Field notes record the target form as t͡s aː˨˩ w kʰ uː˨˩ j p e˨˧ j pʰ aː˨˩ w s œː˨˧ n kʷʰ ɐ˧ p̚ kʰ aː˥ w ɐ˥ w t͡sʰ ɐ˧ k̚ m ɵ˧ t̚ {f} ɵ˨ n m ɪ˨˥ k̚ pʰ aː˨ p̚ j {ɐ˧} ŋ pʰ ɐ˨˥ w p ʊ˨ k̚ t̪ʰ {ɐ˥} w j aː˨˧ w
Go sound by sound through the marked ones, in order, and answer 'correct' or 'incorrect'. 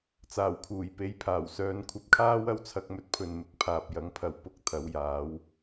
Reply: incorrect, incorrect, incorrect

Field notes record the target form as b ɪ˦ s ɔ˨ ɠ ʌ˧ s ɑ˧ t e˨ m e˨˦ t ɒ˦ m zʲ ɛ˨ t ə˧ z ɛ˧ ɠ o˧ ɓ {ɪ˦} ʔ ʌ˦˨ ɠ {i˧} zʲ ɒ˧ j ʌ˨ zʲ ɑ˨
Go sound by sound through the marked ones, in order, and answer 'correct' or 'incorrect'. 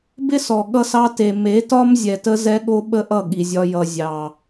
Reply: incorrect, incorrect

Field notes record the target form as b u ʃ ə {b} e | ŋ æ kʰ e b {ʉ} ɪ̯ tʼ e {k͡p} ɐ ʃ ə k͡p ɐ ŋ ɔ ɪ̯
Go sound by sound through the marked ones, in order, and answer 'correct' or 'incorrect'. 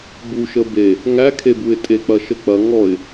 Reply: correct, incorrect, correct

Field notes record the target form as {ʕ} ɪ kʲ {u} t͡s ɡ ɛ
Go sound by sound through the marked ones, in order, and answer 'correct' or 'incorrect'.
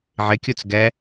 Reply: correct, correct

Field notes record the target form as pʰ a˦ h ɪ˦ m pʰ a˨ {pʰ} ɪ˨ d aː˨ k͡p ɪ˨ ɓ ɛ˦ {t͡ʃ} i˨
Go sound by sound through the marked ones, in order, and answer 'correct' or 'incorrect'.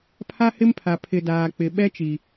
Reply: correct, correct

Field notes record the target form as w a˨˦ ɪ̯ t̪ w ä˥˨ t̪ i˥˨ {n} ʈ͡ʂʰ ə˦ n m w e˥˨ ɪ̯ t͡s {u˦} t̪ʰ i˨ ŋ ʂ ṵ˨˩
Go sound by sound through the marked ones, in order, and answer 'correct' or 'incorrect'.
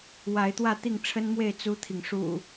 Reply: incorrect, correct

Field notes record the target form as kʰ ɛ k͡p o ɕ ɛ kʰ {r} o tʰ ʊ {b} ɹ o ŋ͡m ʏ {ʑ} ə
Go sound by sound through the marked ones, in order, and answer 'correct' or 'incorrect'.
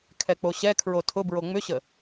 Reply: incorrect, correct, incorrect

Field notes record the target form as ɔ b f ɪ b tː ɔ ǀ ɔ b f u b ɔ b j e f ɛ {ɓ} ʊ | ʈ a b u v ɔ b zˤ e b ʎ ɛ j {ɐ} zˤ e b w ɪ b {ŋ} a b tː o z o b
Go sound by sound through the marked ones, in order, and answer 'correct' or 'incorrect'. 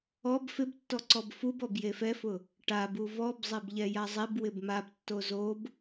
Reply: incorrect, incorrect, incorrect

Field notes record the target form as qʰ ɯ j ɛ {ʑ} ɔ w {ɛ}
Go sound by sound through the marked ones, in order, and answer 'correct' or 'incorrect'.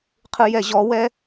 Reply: correct, correct

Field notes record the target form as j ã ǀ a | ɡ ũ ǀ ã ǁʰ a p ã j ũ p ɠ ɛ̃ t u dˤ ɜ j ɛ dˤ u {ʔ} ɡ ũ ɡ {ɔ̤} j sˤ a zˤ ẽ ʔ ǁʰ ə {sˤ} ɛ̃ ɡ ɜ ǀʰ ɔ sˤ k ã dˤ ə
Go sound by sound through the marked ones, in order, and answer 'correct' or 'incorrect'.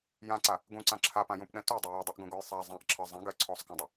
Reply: correct, incorrect, incorrect

